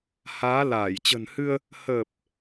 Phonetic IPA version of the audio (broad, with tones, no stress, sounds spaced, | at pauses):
h aː˨˦ l aː˧˩ j t͡ɕ ə̤˨˩ n h ɨ˧ ə̯ | h ə˨˩ p̚